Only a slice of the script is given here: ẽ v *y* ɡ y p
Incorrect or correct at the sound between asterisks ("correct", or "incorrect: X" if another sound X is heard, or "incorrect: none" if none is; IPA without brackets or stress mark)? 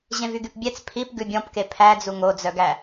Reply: correct